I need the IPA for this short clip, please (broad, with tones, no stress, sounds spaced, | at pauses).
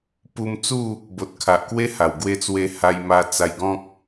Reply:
p u˧ m t͡s u˥˧ | b o˨ t̚ kʰ a˨ ʔ k w e˦ h a˨˩ w ɡ w e˧ t͡s w e˧ h a˧ j m a˧ t͡s a˧ j ɡ ɔ̃˦ k̚